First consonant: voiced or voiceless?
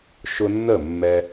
voiceless